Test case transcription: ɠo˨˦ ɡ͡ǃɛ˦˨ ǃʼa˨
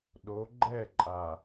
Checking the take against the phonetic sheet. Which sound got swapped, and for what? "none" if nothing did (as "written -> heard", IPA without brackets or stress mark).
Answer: ɠ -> ɗ